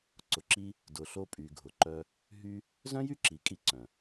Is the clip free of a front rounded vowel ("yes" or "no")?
no